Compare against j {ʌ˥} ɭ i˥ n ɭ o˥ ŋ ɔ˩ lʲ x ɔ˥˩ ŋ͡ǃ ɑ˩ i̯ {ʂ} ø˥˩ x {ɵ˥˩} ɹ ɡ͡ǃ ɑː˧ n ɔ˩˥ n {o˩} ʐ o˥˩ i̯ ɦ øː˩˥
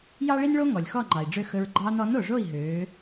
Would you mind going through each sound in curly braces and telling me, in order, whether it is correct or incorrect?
incorrect: ɑ˥, incorrect: ɖ͡ʐ, incorrect: ɵ˧, correct

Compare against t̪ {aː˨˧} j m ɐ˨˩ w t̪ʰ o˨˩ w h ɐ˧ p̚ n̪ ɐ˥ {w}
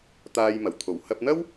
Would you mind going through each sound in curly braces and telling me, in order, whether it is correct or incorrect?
incorrect: aː˧, correct

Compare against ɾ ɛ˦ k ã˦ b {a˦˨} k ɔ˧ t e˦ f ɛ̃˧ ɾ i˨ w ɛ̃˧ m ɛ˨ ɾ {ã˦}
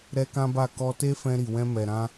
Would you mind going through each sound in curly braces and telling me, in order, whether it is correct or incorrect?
correct, incorrect: ã˧

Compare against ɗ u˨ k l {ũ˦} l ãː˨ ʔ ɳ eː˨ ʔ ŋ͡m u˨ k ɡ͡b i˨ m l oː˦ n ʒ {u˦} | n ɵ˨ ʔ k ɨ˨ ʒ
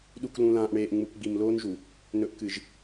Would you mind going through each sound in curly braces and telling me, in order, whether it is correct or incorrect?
incorrect: ũ˨, incorrect: u˨

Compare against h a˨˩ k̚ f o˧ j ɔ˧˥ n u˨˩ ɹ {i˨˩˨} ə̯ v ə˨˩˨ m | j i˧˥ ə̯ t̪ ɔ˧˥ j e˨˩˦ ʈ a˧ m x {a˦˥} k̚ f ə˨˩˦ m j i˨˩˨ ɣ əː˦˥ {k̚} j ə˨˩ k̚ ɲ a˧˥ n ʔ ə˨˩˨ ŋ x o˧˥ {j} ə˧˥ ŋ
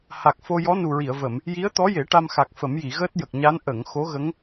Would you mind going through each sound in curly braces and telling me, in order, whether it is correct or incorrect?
correct, incorrect: a˨˩, incorrect: t̚, incorrect: ɣ

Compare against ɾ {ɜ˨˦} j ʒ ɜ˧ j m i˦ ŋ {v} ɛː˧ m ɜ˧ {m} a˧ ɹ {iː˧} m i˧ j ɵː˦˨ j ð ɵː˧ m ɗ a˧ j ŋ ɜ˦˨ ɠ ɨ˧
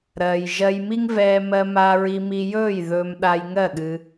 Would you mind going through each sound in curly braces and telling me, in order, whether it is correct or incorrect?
incorrect: ɜ˨, correct, correct, incorrect: i˧

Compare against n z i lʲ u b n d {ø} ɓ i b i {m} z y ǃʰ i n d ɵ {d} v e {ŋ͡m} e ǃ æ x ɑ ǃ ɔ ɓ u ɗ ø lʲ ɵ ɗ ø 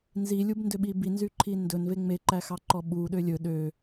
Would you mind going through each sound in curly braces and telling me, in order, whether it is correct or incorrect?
correct, incorrect: n, incorrect: n, correct

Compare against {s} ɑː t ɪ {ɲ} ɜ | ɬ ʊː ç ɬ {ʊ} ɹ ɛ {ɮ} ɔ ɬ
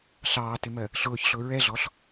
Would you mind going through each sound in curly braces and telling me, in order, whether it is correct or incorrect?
incorrect: ɬ, incorrect: m, correct, correct

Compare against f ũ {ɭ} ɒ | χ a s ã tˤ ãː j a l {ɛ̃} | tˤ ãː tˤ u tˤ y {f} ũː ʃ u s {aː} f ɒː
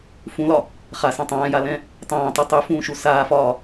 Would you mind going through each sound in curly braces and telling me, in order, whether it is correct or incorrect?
incorrect: l, correct, correct, correct

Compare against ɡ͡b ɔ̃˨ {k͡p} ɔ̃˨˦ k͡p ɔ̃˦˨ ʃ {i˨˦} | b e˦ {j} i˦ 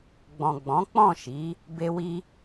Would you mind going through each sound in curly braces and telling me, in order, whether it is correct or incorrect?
incorrect: ɡ͡b, correct, incorrect: w

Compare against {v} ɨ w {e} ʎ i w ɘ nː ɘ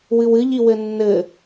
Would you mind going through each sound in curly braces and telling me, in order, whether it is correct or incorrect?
incorrect: w, incorrect: ɨ

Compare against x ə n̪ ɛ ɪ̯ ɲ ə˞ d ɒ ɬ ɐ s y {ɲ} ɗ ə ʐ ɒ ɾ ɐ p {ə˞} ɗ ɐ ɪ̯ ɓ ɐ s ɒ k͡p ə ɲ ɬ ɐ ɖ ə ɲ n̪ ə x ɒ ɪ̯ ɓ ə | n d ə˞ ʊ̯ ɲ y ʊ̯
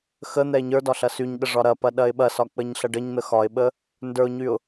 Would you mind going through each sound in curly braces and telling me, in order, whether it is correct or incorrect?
correct, incorrect: ɐ

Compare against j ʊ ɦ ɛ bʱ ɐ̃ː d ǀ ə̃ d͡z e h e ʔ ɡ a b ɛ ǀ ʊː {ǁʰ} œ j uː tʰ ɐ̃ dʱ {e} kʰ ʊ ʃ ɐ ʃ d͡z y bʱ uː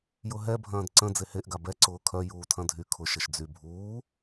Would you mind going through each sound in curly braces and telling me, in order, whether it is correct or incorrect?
incorrect: kʰ, incorrect: y

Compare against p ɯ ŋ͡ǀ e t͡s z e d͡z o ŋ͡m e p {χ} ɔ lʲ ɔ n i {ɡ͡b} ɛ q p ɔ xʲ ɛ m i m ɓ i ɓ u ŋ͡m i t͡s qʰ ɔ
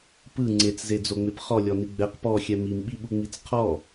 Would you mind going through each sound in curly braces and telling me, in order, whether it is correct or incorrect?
correct, correct

